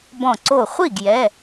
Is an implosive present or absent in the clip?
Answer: absent